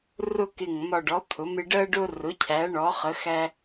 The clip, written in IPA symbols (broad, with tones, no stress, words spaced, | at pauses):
rʊ˧kɪ˨˩ŋ mɒ˨˩ɖɔ˩˧ t̪ʰʊ˩˧mɪ˧ ɖɜ˧ɖʊ˧rʊ˩˧ cʰæ˩˧ɳɔ˩˧χə˩˧xæ˧